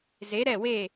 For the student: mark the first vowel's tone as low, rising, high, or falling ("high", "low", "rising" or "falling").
rising